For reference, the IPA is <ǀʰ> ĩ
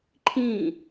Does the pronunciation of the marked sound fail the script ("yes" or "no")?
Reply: yes